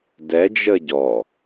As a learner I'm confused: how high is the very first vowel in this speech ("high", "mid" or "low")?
mid